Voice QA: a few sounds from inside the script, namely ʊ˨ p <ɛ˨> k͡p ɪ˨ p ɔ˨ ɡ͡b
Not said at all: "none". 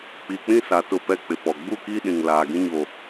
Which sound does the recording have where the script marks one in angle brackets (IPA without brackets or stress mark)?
ɛ˨